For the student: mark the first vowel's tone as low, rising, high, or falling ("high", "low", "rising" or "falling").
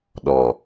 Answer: low